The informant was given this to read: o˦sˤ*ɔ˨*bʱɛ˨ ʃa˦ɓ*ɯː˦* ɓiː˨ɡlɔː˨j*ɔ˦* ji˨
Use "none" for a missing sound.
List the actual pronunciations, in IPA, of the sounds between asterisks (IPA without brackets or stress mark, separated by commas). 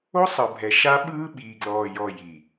ɤ˨, ɯː˦, ɔ˨